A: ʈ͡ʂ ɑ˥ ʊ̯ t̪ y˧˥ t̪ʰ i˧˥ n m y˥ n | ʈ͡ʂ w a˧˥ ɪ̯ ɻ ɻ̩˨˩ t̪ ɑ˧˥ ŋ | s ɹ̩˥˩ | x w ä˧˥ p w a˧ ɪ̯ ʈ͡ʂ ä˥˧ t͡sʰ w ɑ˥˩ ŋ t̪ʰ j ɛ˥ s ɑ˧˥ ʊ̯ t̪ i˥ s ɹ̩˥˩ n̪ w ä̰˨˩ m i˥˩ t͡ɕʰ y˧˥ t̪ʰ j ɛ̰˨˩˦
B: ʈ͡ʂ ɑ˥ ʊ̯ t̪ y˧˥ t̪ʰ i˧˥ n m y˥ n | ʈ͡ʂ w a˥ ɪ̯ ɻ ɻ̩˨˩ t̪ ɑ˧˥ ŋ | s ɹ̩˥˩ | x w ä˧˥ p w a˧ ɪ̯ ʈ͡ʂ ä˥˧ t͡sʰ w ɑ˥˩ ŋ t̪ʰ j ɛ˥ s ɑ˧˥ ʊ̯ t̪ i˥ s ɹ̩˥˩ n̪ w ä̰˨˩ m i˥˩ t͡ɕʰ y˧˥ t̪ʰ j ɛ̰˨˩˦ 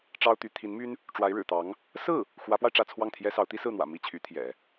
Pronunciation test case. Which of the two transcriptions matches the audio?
A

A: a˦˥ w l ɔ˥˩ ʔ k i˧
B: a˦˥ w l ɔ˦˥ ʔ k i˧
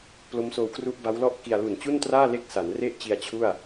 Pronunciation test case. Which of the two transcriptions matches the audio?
A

